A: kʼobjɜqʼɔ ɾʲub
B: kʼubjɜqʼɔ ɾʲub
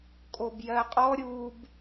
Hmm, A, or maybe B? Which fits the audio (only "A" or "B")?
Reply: A